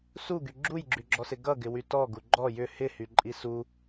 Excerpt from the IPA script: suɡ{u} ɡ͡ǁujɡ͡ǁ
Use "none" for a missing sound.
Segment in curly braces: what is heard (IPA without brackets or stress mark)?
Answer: y